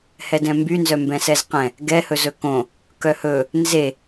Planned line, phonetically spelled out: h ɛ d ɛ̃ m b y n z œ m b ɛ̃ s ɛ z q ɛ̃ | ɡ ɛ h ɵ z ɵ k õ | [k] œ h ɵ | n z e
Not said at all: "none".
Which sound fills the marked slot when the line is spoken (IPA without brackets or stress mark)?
k